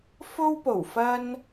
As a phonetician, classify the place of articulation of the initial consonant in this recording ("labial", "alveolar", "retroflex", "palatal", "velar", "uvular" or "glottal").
labial